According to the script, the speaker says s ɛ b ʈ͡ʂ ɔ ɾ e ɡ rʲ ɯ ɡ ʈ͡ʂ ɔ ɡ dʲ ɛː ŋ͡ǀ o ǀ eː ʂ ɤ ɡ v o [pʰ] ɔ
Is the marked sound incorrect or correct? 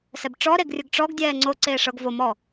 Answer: incorrect